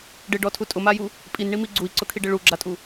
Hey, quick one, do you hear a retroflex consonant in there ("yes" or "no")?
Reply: yes